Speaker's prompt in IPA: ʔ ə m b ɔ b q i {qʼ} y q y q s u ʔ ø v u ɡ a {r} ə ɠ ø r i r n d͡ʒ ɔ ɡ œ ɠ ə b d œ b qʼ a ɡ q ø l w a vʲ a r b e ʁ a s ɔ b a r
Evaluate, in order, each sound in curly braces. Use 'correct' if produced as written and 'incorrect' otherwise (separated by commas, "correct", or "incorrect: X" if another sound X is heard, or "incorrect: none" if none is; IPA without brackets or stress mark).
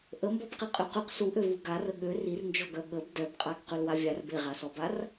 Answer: correct, correct